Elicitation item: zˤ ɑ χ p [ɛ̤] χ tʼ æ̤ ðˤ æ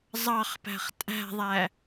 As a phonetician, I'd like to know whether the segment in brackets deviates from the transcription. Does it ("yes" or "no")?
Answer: yes